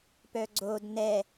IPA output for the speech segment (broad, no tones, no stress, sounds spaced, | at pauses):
p œ ɡ͡ǀ o d n ɛ